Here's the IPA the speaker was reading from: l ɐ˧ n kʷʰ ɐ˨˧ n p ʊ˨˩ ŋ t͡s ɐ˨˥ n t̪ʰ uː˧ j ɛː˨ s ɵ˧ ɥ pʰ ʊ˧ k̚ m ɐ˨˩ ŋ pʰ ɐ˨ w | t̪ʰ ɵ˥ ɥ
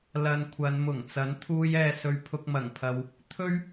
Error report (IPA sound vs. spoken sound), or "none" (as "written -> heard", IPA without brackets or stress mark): p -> m